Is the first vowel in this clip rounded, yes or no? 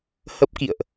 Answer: no